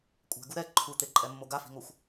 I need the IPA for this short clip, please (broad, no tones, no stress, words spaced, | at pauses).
kʷʼɛ̤ɡu ɾɛ ǃʰut̪eǃʼɛmːo ɡafi̤ŋoxʷ